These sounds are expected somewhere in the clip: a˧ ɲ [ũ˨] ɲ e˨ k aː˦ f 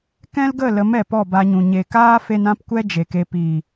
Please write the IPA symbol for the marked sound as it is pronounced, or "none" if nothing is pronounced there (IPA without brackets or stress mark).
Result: ũ˨